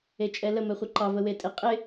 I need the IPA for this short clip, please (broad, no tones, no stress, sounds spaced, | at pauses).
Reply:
e t͡ʃʼ ɛ l ə m ɛ χʷ ɪ ǃ ɑ v ə w e tʼ ɪ qʼ ɪ